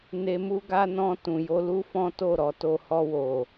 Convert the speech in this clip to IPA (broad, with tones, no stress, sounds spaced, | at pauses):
n e˧ m u˦ ɡ a˦ n ɔ̃˧ t ũ˨ j o˧ l u˦ f ɔ̃˦ t o˦˨ ɾ ɔ˧ t o˧ h ɔ˧ w o˨